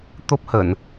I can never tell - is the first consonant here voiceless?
yes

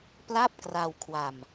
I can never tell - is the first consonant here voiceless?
yes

